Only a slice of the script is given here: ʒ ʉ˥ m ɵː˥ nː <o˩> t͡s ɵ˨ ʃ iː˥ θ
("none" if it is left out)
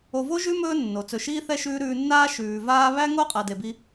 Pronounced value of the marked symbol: o˩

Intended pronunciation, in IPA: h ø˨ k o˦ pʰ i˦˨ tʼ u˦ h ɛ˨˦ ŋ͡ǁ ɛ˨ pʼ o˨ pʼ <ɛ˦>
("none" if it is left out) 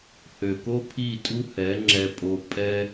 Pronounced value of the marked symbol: ɛ˦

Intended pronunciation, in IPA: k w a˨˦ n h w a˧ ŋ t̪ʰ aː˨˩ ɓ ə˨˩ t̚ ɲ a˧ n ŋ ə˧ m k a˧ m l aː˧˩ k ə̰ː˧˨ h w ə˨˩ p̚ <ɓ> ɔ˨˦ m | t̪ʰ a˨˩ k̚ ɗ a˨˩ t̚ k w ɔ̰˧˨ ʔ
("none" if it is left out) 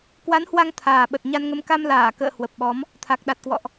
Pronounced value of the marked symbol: ɓ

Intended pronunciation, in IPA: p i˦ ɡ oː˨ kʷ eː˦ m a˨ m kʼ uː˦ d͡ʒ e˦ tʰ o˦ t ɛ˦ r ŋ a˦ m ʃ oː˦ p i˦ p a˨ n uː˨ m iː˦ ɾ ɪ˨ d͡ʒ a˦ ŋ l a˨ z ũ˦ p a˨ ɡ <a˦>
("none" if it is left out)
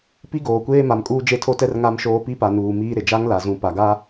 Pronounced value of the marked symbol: a˦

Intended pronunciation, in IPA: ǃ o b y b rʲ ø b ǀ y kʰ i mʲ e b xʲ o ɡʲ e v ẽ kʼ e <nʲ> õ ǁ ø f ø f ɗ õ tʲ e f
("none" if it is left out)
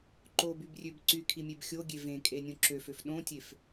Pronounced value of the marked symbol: nʲ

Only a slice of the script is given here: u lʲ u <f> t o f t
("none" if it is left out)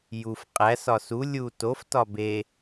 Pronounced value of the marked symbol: none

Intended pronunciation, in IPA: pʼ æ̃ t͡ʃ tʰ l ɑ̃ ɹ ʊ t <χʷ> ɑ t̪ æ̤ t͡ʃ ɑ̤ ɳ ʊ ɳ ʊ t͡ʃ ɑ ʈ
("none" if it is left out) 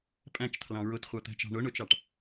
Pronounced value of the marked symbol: χʷ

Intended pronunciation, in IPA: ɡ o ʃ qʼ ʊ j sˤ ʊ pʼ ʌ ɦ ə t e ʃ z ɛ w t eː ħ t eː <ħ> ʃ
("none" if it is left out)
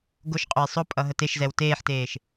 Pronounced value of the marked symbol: none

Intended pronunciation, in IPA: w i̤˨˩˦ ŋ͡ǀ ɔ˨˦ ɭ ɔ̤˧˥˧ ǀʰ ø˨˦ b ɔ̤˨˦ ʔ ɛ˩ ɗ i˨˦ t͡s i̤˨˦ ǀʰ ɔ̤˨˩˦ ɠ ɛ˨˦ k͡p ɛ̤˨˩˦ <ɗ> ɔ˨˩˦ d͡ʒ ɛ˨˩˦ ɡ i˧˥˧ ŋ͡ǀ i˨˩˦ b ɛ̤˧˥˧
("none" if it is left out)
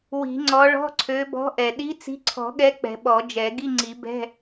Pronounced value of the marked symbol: ɓ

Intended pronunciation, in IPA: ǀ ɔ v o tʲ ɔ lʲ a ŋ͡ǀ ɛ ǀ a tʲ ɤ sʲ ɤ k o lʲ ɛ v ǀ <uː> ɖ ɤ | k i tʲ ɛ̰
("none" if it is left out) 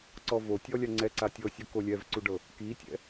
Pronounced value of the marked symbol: u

